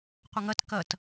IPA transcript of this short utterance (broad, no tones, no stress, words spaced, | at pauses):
qʷɐŋɐt kɐt